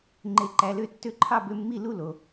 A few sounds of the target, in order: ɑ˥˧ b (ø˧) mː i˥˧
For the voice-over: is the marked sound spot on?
no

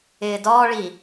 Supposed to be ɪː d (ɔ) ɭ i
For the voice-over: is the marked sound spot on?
no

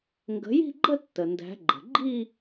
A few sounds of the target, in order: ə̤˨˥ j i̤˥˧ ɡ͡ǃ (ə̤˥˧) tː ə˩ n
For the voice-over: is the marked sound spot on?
no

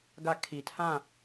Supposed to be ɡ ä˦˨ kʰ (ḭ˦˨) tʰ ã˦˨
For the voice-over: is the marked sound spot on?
no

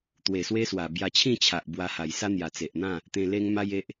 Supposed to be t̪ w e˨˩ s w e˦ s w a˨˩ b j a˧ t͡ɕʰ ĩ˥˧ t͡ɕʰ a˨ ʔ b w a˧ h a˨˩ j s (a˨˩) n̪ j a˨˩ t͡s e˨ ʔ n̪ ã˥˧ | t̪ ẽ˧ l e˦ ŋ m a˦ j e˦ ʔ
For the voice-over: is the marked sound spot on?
no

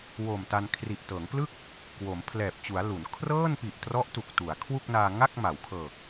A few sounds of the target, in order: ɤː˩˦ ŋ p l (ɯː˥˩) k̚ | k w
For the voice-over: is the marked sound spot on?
no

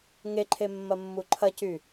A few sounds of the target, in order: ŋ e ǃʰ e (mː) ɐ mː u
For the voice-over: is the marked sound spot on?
yes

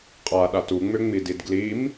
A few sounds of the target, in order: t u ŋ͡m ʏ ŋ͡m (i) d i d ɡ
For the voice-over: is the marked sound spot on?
yes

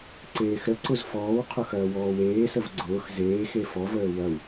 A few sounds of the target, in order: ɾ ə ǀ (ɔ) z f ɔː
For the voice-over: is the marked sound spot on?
no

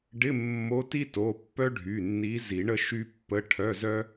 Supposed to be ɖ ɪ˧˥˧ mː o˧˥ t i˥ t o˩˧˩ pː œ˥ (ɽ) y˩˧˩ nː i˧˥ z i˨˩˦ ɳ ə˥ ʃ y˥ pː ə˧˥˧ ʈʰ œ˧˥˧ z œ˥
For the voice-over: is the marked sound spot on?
no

